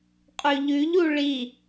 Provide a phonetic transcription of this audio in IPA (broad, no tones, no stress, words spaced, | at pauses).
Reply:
qʼʉʎʉʎu ɭi